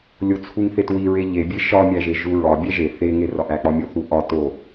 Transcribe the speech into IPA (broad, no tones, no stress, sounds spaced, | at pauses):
lʲ o t͡sʰ u ŋ θ e t w i ɹ e ʎ e bʲ e ʃ ɒ mʲ æ ʒ e ʒ u ɹ ɒ bʲ æ ʒ e θ e ŋ e r ɒ ʔ æ k͡p ɒ mʲ o θ u ʔ ɒ t o